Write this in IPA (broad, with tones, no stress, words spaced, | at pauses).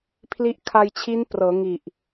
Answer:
pʰli˦˥ʔkʰa˧jt͡ɕʰi˦˥n prɤː˩˦ŋi˨˩ʔ